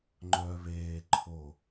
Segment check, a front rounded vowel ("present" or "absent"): present